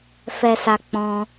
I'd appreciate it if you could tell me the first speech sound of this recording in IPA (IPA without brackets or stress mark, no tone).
f